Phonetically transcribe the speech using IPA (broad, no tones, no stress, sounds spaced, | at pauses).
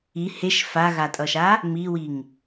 i h e ʃ f a ɣ a tʼ ʌ ʃ a | m i w i ŋ